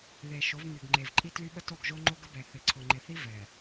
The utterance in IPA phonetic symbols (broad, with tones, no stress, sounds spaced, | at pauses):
ð e˨ ʃ o˨˦ v m y˨ ɡ ŋ͡ǃ e˨ v ǃʼ i˦ t l y˦ ɓ ə˦ t o˦˨ ɡ ʒ o˦ ŋ͡ǃ o˦ ɡ ə˦ b ɛ˨ θ ɪ˨ ǀʰ ʊ˨ ŋ͡ǃ ɪ˨ θ i˦ v ɛ˨